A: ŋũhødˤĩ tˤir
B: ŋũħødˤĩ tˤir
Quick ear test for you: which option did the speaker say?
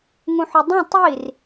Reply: B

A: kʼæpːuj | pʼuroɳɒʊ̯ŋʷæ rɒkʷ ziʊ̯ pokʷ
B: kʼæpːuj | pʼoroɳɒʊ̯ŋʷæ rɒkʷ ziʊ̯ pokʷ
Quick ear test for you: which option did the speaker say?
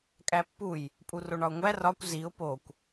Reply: A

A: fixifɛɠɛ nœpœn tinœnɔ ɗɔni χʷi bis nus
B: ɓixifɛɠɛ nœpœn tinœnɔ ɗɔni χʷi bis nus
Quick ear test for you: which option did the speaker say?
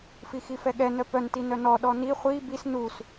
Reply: A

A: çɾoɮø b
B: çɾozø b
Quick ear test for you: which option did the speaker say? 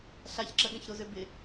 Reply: B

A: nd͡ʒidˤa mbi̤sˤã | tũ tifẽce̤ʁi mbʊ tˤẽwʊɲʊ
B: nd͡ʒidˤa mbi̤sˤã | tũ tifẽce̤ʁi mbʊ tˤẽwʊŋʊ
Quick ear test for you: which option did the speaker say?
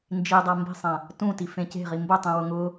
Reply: B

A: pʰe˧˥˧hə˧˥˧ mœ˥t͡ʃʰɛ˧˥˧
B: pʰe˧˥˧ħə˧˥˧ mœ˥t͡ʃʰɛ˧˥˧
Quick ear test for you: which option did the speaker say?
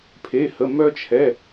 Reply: A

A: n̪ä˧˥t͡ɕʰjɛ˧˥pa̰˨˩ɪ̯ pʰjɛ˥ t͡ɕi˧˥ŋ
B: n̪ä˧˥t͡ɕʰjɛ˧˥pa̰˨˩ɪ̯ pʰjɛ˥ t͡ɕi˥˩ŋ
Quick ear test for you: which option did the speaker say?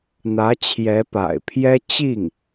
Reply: B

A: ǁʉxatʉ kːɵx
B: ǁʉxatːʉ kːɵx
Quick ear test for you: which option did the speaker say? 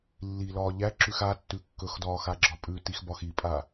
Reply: B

